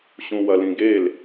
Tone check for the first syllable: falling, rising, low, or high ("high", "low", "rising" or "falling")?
low